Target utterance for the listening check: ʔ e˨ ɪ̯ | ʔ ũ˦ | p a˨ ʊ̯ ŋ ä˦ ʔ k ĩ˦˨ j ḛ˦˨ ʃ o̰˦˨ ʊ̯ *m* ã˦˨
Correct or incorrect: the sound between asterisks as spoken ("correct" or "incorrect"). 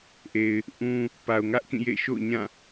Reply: incorrect